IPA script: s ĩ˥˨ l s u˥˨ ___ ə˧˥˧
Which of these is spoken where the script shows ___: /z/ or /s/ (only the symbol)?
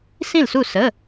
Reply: s